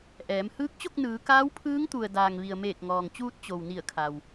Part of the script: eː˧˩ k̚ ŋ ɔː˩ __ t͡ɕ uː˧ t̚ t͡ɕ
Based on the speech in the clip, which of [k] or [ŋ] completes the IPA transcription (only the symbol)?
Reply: ŋ